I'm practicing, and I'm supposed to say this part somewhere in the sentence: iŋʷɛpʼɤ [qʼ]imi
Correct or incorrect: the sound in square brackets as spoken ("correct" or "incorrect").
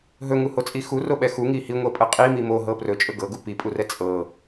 correct